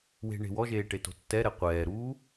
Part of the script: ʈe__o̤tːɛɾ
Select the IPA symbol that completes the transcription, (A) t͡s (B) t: B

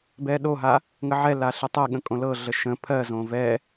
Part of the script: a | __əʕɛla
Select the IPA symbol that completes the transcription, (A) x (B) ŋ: B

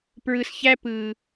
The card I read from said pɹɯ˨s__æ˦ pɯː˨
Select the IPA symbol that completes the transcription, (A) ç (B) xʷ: A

